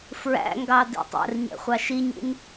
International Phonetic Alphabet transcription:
f ɹ æ̰ ŋ ɡ ɑ d ḭ tˤ ɛ̰ r ɲ ɛ̰ χʷ ɑ ʃ i ɲ ḭ n

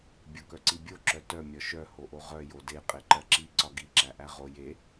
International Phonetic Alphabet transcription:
bʲ o k œ ǀ i bʲ o ǁ œ t œ mʲ ɒ ʃ œ h o ʔ o ʁ œ j o d e qʼ e ǃ ɜ ǁ i ǀ ɒ ɡ i ǁ æ ʔ æ ʁ o j e

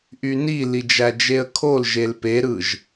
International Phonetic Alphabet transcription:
ʔ y n i l i d͡ʒ æ d͡ʒ e ə̯ kʰ o l ʒ e l p e ɾ ɯ ʒ

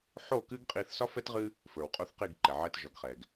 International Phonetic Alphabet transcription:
ħ o˦˨ k ɨ˦ ɡ qʼ i˧ θ s ɒ˦ f ɛ˦ t ʁ ɨ˦ | f ə˞˨ w qʼ o˦ θ q i˦˨ ɡ ǃ ɛ˨ ʕ ɛ˧ t ʒ ɒ˨ ɡ χ ɛ˨ ɡ

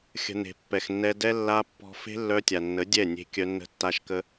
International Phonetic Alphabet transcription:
xʲ ə̤˨ n e̤˨ pː ɛ˨ x nː ɛ˧ d ɛ˦ lː a˧ pː ɔ̤˧ f e̤˦ lː œ˧ tʲ a˨ nː ə˨˦ dʲ ɛ˦˨ nʲ e̤˧ kʲ œ˧ nː ə̤˧ tː a˧ ʃ k ə˧

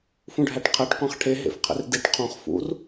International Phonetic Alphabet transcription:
f ũ ɖʱ æ ʈ qʰ æ ʈ qʷ æ̃ χ ʈʰ e ɦ ḛ f qʰ ḛ r d i ʈ qʰ õ χ f ṵ r

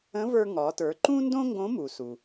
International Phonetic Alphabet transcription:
ə̃˧˥ v ə˞˧ ŋ ɒ˩˧ t ə˞˩˧ ǃ ũ˥ n d õ˥ ŋ ɡ õ˧˥ m u˩ s u˩

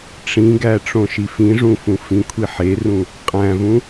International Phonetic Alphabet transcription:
ʈ͡ʂ ĩ ɡ æ ʈ͡ʂ õ ʃ i f ĩ ʐ ũ f ũ f ĩ kʷʰ i ħ e r ũ | qʼ æ̃ v ũ

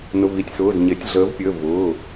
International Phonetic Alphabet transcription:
n ʊ˩˧˩ v i˩˧˩ tʲ s ʊː˩˧˩ z ɲ e˩˧ tʲ ɮ əː˩˧ v pʲ əː˩˧˩ v ʊː˩˧˩

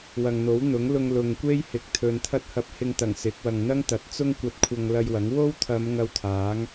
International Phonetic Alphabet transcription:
w ɐ˨ ŋ n̪ o˨˥ w n̪ ʊ˨˥ ŋ l ʊ˧ ŋ l ʊ˨ ŋ kʷ e˥ j h ɪ˨ k̚ t̪ʰ ɵ˨ n t̪ʰ ɐ˥ t̚ h ɐ˧ p̚ h ɪ˧ ŋ t̪ ɐ˨˩ ŋ s ɪ˨˥ k̚ w ɐ˨ ŋ n̪ ɐ˥ ŋ t̪ ɐ˨˥ t̚ t͡s ʊ˥ ŋ kʷ ɐ˧ t̚ kʷʰ ɐ˧ ŋ l ɐ˧ j w ɐ˨˥ ŋ w o˥ w t̪ʰ ɐ˨˧ m ŋ ɐ˧ w t̪ʰ aː˨˥ ŋ

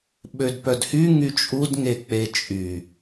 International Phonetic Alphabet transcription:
ɓ ø d p œ d h y ŋ y t͡ʃʼ u d ŋ e k͡p e t͡ʃʼ y

